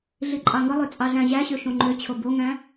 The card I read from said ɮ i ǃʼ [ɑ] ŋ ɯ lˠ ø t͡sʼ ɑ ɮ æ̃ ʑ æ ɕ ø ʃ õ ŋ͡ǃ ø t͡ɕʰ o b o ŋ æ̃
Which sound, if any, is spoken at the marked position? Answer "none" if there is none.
ɑ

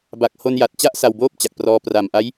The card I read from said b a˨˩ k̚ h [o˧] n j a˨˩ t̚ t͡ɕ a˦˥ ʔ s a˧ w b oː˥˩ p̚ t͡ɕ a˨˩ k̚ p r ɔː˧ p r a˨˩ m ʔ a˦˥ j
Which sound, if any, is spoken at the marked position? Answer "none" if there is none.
o˧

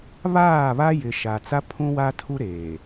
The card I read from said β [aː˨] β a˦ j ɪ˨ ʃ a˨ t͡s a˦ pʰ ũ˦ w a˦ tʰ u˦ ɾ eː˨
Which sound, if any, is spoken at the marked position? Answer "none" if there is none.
aː˦˨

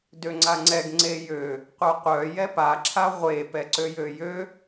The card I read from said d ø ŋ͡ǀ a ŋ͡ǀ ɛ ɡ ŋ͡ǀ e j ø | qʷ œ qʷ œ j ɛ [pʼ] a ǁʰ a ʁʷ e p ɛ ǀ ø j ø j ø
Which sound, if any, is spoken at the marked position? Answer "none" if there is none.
p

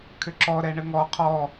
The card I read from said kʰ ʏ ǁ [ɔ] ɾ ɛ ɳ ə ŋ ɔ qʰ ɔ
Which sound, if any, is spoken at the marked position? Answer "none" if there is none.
ɔ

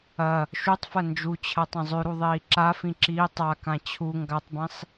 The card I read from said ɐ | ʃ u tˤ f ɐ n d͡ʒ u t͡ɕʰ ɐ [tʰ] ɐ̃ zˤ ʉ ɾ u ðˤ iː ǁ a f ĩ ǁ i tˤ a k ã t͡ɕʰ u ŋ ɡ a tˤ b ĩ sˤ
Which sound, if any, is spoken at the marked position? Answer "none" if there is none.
tˤ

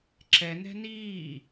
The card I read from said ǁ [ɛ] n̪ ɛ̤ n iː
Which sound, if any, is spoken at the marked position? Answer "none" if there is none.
ɛ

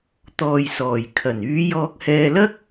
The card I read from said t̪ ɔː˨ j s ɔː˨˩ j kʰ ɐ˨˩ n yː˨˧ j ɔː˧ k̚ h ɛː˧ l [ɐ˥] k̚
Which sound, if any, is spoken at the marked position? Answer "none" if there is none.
ɐ˥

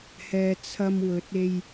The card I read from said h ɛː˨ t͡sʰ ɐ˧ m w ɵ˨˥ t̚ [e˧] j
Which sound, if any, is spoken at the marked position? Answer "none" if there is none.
e˧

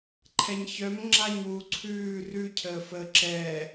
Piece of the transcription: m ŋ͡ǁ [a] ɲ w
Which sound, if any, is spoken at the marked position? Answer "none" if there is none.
a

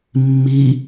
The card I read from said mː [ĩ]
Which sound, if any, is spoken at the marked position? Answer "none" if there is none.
i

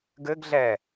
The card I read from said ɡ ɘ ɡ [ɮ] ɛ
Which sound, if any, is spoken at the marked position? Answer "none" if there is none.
ɮ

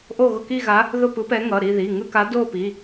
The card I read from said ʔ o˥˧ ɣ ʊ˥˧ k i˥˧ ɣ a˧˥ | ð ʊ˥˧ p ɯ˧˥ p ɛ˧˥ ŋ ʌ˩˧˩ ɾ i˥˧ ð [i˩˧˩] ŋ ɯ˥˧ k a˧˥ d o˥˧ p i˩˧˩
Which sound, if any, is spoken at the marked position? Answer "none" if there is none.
i˩˧˩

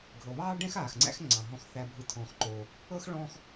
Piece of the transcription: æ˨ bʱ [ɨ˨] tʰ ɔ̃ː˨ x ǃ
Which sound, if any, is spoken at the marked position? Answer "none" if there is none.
ɨ˨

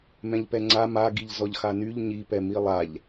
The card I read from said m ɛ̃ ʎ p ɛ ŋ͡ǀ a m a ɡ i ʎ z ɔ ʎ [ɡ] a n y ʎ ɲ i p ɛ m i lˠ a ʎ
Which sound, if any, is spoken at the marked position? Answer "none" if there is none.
x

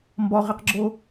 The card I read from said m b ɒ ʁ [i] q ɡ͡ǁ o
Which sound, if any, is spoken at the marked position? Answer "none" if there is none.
i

